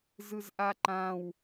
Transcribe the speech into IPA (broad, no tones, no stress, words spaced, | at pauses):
zɯzʔaǃãw